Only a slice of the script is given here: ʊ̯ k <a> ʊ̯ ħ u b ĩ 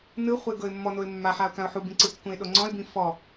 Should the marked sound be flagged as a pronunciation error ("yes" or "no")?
yes